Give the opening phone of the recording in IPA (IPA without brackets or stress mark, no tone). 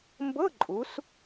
m